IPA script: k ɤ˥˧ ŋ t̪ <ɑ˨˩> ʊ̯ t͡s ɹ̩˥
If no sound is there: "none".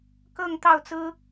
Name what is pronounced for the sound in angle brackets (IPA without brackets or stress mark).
ɑ˥˩